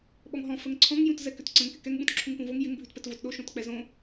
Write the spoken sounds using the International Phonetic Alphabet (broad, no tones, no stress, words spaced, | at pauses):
ɓɔŋɦɔ̃ fəŋǀʰɔ̃ŋ jũtzɛkʏtǀə̃ŋ kɪkɛŋ ɓũtǁʰũŋpũvoŋ jɪŋ bʱʉtpɛtvotɗo ʃõtk͡pɛzõ